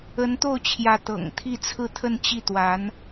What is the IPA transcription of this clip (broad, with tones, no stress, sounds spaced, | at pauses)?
ə˧˥ n t̪ o˥˩ ʊ̯ t͡ɕʰ j ä˧˥ t̪ ɤ̰˨˩ ŋ t̪ʰ i˥˧ t͡sʰ ɹ̩˥˧ t̪ʰ ə˥˧ n t͡ɕ i˥˩ t̪ w a˧˥ n